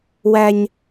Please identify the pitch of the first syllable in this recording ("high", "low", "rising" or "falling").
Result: high